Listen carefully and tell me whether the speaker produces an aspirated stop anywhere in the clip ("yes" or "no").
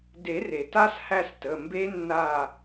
no